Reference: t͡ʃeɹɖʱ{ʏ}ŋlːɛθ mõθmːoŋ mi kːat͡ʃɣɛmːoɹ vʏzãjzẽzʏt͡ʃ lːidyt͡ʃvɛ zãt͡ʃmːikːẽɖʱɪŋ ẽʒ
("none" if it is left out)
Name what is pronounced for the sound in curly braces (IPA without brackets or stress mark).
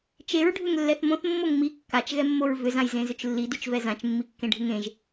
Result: ʏ